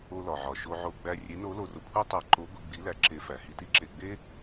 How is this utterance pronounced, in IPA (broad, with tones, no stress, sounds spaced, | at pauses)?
o˧ l ɒ˩ ʕ ɒ˩ ʃ o˧ ʕ o˧ ɡ͡b æ˧ rʲ e˧˥ n o˧˥ l o˧ r o˧ kʷʰ e˥ tˤ æ˧ ǃ o˧˥ ɡʷ i˧ ɡ͡b i˧˥ l æ˧ ǁ e˧˥ f æ˩˧ h i˧ t i˥ ǁ e˧ ɡ͡b e˥